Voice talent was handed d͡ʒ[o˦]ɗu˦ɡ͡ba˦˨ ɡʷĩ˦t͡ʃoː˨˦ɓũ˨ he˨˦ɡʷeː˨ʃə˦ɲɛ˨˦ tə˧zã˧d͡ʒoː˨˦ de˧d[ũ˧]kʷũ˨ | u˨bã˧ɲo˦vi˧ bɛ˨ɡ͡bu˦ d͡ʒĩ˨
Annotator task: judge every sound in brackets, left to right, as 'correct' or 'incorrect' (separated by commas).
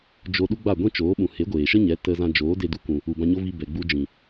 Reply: incorrect, incorrect